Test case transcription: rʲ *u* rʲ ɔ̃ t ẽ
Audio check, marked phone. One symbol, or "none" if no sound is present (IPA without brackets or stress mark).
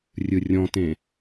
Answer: ɯ